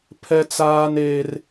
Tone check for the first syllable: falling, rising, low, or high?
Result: high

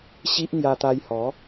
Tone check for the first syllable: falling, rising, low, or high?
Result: high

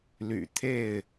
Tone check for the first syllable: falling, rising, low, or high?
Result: low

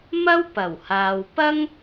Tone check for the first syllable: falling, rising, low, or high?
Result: high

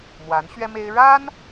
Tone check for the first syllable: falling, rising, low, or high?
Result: rising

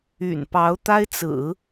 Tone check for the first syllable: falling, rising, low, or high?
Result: low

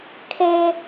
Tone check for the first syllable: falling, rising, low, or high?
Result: low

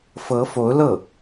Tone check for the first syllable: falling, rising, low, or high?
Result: rising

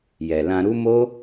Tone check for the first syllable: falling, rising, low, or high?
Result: low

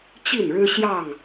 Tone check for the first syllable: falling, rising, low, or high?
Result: falling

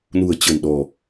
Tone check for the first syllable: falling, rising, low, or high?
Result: low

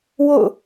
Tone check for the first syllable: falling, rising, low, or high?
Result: falling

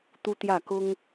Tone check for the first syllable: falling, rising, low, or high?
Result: high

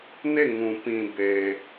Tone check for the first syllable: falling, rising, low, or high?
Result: falling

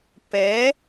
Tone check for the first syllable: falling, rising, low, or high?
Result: rising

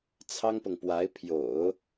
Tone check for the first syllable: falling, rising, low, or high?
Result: high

